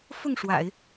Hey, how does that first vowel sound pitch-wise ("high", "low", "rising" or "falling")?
falling